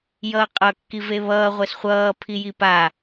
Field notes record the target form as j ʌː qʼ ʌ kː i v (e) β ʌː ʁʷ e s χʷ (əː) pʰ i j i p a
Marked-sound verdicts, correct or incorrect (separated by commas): correct, incorrect